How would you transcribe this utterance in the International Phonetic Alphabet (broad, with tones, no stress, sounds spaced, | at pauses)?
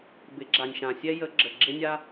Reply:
b ɪ˩˥ ɡ͡ǁ a˩ nʲ ʃ ã˩ sʲ ɛ˥ j ə˧˥ ɡ͡ǁ ə˩ ɡ͡ǁ ɪ˥ nʲ a˥